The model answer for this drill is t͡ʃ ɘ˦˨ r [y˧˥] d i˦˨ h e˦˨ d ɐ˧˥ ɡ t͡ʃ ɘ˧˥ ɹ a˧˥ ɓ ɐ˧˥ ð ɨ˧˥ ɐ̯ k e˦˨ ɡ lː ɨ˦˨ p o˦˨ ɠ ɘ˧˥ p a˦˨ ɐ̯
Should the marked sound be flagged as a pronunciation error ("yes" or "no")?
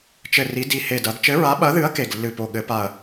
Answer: yes